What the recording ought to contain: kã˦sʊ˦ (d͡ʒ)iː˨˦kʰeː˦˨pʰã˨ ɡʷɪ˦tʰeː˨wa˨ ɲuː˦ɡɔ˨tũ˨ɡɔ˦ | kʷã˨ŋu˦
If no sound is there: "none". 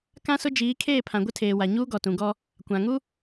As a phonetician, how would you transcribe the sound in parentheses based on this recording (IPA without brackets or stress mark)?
d͡ʒ